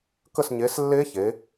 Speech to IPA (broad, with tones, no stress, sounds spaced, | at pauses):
k ə˦˨ s ɲ e˨˦ s lː e˦˥ ç e˨˦